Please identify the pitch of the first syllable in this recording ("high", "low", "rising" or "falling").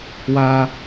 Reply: high